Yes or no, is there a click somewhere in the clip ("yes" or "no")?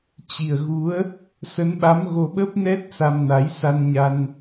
no